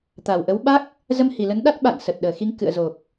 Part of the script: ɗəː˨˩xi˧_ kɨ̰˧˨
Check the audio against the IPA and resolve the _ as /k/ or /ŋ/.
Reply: ŋ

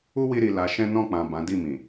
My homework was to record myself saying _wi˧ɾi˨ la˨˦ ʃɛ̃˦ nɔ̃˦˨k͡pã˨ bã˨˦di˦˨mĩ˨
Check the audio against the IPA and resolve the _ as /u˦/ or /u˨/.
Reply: u˦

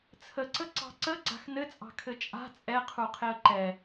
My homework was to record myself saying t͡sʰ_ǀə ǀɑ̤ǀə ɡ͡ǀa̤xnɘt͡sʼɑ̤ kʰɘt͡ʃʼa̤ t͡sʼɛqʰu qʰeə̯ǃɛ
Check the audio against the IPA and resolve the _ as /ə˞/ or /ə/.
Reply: ə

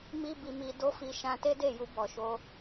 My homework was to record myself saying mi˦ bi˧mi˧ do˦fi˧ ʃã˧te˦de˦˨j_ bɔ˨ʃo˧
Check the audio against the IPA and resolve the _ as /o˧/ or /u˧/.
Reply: u˧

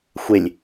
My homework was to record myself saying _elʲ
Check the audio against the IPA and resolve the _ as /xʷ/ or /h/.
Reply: xʷ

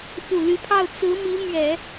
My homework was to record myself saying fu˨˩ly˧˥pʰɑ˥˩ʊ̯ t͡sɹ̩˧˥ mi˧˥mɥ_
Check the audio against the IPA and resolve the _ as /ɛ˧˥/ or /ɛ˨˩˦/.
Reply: ɛ˨˩˦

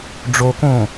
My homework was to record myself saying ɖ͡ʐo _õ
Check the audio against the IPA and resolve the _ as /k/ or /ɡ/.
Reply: k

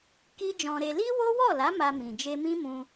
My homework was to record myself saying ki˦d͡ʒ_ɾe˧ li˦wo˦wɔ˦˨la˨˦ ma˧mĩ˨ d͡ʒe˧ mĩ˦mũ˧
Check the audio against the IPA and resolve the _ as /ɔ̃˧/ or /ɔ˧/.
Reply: ɔ̃˧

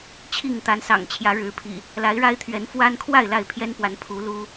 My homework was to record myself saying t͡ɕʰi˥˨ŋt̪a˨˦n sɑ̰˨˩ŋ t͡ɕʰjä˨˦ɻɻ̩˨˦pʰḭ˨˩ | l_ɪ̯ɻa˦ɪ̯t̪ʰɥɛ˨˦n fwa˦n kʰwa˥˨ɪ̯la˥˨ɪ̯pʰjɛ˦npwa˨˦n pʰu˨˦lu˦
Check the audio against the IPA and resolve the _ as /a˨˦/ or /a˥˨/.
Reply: a˨˦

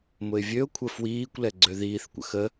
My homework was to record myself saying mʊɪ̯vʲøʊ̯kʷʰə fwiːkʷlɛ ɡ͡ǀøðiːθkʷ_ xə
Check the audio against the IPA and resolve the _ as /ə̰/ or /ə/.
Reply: ə̰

